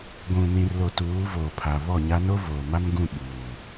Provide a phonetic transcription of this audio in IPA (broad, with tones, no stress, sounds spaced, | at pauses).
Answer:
ɡʷ ũ˨ n ĩ˨ r l o˨ t uː˨˦ v oː˨ pʰ a˨ β ɔ˦˨ ɲ a˦ n o˦ v oː˨ m a˦ m ɡ ũ˦˨ ɓ uː˨